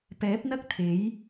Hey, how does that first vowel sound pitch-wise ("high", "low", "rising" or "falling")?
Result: rising